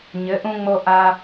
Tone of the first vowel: rising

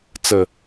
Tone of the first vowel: low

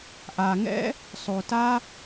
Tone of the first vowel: low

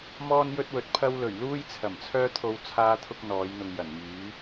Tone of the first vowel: high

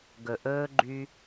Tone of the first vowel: low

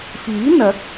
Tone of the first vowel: rising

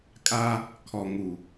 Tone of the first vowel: high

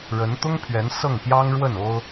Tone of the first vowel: rising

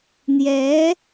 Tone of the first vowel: rising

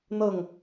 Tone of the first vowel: falling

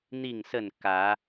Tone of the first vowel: falling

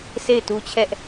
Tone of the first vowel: falling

